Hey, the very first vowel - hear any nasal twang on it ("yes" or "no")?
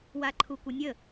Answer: no